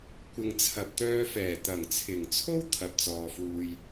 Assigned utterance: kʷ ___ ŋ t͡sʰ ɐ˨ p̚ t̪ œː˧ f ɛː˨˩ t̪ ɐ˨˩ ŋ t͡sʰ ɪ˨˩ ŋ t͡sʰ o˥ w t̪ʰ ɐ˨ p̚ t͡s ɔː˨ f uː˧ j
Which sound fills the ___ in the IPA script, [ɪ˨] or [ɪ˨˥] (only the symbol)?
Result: ɪ˨